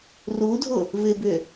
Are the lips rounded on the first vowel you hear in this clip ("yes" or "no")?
yes